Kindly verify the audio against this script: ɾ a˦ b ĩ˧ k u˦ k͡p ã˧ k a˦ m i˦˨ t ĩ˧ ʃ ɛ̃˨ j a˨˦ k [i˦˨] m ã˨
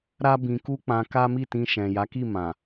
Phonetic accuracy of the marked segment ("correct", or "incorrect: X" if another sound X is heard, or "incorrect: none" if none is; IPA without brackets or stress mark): correct